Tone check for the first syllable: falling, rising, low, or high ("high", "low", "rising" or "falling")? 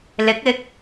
rising